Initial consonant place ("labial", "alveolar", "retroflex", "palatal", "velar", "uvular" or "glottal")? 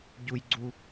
palatal